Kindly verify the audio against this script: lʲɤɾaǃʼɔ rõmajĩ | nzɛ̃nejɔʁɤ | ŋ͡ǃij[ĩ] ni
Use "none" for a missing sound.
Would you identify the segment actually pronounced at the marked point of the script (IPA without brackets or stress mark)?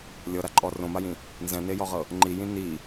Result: ĩ